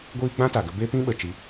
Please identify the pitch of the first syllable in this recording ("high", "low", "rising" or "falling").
high